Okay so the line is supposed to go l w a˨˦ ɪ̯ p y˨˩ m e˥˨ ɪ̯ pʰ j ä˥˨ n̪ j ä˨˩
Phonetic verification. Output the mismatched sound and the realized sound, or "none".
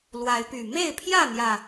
none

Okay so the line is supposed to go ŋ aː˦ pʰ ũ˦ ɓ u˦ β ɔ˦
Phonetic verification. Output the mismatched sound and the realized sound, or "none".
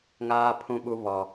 none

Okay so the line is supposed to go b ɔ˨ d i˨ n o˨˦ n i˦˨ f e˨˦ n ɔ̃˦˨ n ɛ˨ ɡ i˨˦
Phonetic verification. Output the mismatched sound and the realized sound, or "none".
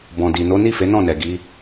ɔ˨ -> ɔ̃˨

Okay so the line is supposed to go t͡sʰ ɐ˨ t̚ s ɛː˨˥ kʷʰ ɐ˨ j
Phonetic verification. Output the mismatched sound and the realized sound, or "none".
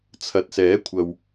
j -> w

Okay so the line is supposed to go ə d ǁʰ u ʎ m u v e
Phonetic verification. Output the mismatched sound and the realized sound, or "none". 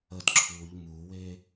v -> w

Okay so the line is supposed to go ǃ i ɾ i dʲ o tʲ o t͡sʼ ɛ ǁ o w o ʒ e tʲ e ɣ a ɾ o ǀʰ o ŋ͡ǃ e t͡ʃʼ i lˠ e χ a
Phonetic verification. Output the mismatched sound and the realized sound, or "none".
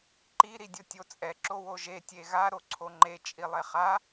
none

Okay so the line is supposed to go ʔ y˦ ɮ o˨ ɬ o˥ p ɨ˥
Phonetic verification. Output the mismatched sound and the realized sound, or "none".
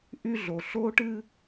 p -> ʈ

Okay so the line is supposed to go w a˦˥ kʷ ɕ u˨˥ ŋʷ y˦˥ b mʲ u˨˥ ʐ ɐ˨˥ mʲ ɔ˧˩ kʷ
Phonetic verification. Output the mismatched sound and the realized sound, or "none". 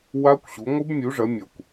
y˦˥ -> ɨ˦˥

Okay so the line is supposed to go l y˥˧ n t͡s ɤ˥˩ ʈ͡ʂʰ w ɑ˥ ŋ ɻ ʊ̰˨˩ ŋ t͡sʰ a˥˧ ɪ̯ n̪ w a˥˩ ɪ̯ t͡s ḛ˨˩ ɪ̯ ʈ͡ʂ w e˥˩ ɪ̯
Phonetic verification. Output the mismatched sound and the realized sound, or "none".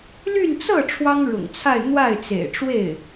none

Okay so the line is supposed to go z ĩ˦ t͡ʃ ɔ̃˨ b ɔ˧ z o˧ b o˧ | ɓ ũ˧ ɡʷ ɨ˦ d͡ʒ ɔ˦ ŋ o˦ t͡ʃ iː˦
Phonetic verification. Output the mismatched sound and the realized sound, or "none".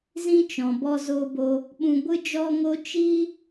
none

